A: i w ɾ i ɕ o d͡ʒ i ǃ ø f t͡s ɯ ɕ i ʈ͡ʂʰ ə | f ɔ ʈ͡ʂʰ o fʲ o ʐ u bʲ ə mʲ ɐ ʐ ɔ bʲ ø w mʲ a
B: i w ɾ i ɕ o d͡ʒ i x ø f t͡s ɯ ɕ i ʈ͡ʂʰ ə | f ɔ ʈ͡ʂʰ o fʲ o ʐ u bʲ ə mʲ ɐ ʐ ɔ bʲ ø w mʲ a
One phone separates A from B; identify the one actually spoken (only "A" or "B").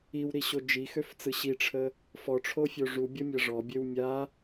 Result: B